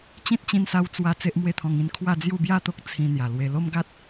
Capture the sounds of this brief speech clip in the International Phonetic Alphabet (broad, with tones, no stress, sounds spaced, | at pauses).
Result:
t͡ɕ ĩ˦ t̚ t͡ɕ ĩ˧ n s a˧ w t͡s w a˧ t͡s e˦ ʔ m w e˥˧ t̪ʰ ɔ̃˧ ŋ ĩ˥˧ n kʰ w a˥˧ d͡z j u˥˧ b j a˥˧ t̪ o˦ k̚ t͡sʰ ĩ˧ n̪ j a˨˩ l w e˧ l o˦ m ɡ a˦ t̚